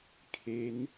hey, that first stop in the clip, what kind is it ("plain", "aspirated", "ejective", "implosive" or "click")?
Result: aspirated